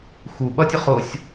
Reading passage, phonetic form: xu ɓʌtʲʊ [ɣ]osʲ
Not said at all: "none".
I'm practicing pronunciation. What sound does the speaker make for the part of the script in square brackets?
χ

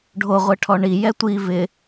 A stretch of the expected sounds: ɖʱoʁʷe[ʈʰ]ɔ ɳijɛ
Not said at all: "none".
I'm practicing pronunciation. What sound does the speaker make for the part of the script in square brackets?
ʈʰ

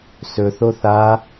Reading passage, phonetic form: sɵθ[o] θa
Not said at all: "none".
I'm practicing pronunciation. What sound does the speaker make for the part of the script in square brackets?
o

